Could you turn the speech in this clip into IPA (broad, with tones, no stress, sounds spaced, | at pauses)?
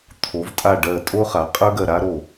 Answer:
t̪ʰ o˩˧ v tʼ a˧˩ ɖ ɜ˧˩ tʼ o˦ χ a˩˧ qʼ ə˞˦ ɡ ɜ˧˩ ɾ a˦ ɾ o˧˩